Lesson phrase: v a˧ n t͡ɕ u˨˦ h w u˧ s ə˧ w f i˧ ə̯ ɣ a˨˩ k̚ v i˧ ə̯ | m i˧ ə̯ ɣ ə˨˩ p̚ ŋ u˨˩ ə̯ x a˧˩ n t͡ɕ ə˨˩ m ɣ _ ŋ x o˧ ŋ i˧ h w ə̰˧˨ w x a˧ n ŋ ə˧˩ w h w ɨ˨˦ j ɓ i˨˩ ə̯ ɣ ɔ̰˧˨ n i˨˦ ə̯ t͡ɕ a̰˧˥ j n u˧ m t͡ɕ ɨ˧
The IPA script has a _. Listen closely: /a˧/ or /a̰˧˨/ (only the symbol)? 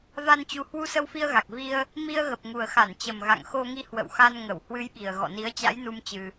a̰˧˨